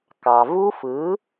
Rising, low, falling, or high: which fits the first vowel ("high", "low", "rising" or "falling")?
low